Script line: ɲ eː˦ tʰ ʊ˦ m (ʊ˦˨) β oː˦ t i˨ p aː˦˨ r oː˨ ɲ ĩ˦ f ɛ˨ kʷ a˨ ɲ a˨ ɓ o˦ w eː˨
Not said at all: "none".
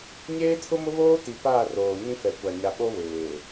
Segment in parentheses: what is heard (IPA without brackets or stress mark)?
ʊ˦